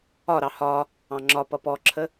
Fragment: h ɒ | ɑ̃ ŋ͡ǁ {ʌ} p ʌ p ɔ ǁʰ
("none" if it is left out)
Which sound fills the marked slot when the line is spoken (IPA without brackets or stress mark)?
ɒ